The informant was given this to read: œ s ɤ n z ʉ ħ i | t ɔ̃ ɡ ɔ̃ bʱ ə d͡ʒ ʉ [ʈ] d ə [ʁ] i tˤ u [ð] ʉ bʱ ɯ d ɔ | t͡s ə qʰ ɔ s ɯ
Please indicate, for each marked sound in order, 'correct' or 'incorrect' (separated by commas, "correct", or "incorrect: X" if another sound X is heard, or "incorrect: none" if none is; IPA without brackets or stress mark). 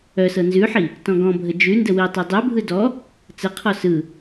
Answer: incorrect: n, incorrect: w, incorrect: dˤ